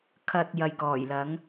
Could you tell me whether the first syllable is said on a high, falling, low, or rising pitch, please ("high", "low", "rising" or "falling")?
low